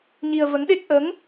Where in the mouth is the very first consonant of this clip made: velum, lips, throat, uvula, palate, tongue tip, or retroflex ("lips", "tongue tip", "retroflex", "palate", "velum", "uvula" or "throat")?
palate